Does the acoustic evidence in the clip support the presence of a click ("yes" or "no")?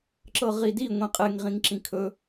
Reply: yes